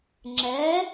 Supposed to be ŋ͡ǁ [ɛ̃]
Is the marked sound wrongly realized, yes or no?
yes